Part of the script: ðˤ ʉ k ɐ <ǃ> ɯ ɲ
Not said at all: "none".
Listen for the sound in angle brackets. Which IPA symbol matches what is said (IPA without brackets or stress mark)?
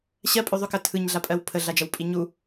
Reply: tʰ